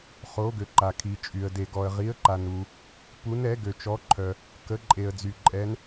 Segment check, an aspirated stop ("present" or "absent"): present